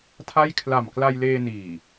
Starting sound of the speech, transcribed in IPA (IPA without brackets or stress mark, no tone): tʰ